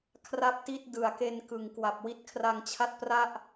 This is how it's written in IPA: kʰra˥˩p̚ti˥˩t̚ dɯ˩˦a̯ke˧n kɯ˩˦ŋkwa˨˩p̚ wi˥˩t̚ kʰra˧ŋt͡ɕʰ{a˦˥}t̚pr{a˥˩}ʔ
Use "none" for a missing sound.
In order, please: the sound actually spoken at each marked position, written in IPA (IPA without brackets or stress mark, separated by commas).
a˥˩, a˥˩